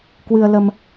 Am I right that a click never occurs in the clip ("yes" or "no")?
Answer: yes